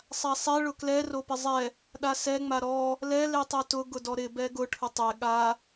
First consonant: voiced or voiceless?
voiceless